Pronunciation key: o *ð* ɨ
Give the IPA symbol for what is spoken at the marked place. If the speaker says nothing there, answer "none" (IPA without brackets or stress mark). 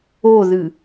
ð